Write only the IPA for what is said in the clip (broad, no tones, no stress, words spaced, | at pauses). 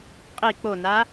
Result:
qʼi k͡pona